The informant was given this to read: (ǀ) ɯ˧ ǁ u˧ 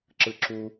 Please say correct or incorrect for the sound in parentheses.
incorrect